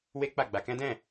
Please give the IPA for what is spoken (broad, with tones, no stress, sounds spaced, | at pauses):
w e˦ k͡p a˦˨ ɡ͡b a˧ k ɛ̃˦ d ɛ̃˦˨